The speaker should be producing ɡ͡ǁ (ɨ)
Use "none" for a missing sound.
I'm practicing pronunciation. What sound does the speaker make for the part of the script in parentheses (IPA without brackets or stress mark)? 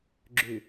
ʉ